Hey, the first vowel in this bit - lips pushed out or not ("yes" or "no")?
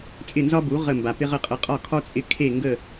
no